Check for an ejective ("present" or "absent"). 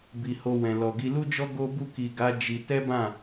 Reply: absent